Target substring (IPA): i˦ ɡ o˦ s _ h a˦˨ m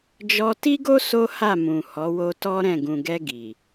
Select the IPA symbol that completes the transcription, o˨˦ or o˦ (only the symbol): o˦